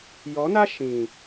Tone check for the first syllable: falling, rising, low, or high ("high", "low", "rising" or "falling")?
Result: rising